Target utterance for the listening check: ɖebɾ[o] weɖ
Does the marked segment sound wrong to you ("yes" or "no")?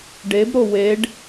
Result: no